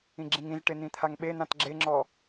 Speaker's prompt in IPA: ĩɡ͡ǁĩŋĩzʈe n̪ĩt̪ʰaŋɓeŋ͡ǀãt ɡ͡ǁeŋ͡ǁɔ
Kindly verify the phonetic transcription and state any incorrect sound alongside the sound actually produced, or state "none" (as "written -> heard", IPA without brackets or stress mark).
ŋ͡ǀ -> n̪